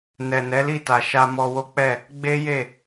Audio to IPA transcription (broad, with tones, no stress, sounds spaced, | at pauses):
n ɛ˨ n ɛ˨˦ l i˦˨ t a˨ ʃ a˧ m ɔ˧ w o˦ k͡p ɛ˦˨ | ɡ͡b e˦ j e˦˨